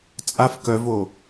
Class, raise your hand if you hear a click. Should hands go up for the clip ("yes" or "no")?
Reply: no